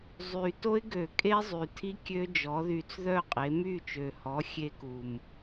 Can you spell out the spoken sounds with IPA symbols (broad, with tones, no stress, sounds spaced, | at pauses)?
zˤ y˨˩ t o˦˥ ɪ̯ ɡ ø˧˩˧ kʼ e˦˥ zˤ y˨˩ tʰ i˦˥ kʲ ø˦˥ d͡ʒ ɔ˩˥ ð y˧ t͡s ð œ˥˩ qʼ e˩˥ m y˥˩ t͡ʃ ø˨˩ h ɔ˩˥ xʲ e˦˥ k u˨˩ m